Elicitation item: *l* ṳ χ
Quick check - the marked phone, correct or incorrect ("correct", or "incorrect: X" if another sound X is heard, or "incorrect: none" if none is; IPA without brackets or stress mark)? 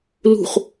correct